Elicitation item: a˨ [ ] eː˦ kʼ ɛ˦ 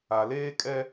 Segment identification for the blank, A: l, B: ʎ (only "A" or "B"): A